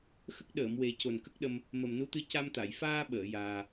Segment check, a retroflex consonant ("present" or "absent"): absent